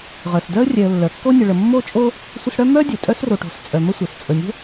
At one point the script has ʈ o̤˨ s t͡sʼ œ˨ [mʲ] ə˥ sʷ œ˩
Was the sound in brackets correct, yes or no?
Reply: no